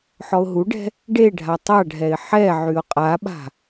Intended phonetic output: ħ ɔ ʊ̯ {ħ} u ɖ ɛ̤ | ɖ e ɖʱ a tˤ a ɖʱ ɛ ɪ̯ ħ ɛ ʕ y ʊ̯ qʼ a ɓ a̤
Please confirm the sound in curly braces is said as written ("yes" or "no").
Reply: no